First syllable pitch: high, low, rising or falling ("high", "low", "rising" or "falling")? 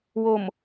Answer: low